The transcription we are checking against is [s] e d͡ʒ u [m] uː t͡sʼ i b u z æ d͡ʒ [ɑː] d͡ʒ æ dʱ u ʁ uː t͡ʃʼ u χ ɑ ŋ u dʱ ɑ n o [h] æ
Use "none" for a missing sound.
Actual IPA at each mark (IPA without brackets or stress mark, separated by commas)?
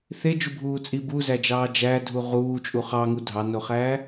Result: θ, bʱ, ɑː, χ